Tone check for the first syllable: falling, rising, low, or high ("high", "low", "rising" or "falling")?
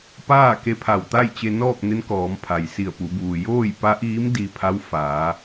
falling